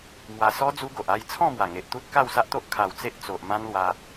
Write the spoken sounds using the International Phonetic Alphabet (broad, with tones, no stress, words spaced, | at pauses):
mwa˧ sɔ˦ d͡zu˦ɡo˨ʔa˥˧j t͡sʰɔ̃˥˧mwa˨˩ ŋe˨ʔt̪u˦t̚ ka˥˧wsa˦ʔt̪o˦ʔ kʰa˨˩w t͡se˦ʔt͡so˨ʔ mã˦nlwa˧